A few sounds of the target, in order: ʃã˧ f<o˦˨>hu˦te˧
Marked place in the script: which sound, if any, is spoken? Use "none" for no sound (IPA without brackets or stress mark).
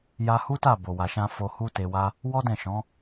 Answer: o˧